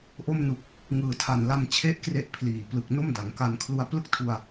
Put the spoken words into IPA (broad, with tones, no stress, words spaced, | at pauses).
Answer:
ʔo˧mnu˨˩k̚ | ŋɯː˨˩tʰa˨˩nla˧m t͡ɕʰe˥˩ʔkre˦˥ʔ pʰliː˨˩plɯ˨˩k̚ no˥˩mda˩˦ŋka˧n kʰlu˧a̯ plɯ˥˩k̚tʰu˧a̯